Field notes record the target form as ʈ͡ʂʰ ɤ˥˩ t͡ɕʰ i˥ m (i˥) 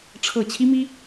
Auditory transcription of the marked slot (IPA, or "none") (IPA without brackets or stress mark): i˥